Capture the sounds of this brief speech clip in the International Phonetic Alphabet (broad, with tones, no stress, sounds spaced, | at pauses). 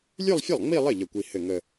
lʲ ʉ˥˧ lˠ fʲ ə˥˩ lˠ ŋ͡m i˥˧ lˠ ɘ˥˩ ʎ ə˥˩ kʷ i˥˧ h ɘ˥˩ ŋ ə˥˧